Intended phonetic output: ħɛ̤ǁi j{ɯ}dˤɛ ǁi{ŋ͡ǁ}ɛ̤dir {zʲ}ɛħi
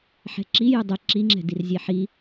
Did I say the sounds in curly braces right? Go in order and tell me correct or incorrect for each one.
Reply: correct, correct, correct

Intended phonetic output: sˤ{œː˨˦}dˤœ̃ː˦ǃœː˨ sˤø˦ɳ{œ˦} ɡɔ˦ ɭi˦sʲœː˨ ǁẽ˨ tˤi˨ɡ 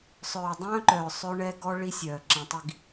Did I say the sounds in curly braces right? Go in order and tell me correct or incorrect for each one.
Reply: incorrect, incorrect

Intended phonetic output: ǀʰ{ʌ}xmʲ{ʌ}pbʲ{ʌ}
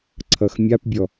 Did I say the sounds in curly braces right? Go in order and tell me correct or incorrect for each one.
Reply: correct, incorrect, incorrect

